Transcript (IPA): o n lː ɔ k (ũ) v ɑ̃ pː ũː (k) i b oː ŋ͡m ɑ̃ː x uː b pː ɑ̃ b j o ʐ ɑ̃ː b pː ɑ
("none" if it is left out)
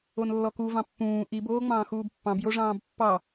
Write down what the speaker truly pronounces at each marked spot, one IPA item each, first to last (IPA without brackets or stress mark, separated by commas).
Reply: u, ʔ